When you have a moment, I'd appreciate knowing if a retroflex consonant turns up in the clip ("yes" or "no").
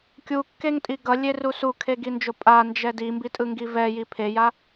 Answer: no